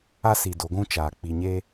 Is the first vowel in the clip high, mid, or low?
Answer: low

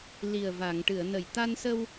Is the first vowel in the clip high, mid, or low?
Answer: high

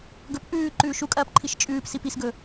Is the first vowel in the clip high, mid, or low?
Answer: mid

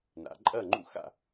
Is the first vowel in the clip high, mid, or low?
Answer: low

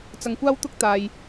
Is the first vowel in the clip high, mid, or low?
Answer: low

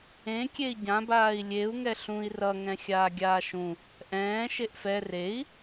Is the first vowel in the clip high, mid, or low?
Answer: mid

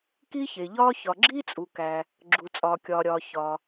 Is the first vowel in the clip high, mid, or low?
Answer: high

